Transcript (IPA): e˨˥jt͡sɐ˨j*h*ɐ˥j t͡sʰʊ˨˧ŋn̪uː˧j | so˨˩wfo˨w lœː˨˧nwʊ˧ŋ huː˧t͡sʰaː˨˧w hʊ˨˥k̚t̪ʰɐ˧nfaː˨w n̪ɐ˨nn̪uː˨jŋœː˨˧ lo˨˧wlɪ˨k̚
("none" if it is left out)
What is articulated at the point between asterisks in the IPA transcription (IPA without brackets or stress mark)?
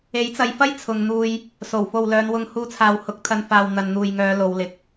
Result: f